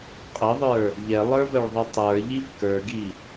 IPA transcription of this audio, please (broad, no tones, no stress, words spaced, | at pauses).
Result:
qʼəðˤə˞ | ʎɛlˠə˞vəɭðˤɤ tˤə˞ʎiv kə˞ɡi